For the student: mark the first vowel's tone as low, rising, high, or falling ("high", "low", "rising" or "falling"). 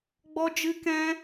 high